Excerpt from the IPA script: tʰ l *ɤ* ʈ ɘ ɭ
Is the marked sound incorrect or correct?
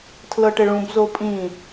correct